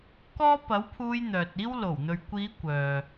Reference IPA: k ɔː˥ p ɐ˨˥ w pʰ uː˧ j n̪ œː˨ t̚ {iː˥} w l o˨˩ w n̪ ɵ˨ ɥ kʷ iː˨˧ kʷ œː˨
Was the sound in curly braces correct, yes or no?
yes